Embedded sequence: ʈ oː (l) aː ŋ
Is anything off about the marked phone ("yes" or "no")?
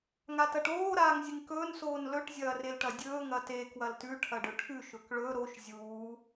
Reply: yes